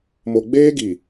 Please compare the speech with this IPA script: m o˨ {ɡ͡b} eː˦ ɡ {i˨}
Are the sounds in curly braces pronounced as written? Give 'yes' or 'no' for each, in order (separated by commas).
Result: yes, yes